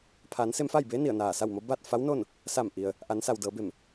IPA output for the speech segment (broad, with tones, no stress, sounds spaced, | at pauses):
pʰ aː˩˧ n s e˧ m f a˥˨ j b eː˧˥ n i˧˩ ə̯ n aː˧˩ s a˥˨ w m o˧˥ b a˥˨ t̚ f a˧˥ w n o˥˨ n | s a˧˩ m ʔ i˩ ə̯ | ʔ a˩˧ n s a˩ w d ɤː˩˧ b e˧˩ m